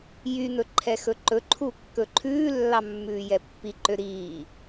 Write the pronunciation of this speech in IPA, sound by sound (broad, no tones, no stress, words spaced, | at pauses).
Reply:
jyn̪ɵ ǃʰɛxɵǃɵǃʰu kːɵǃʰʉːlːɑ mːʉːjɛpːiǃø ɾiː